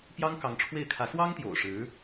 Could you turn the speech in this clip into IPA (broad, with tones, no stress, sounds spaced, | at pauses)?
p j ɑ˥ ŋ k ɑ˧˥ ŋ ʈ͡ʂʰ w e˥˩ ɪ̯ kʰ ä˧˥ s w ɑ˥ ŋ t̪ j o̰˨˩ ʊ̯ ʂ ɻ̩˧˥